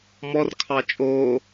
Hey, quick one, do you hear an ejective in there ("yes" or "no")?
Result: yes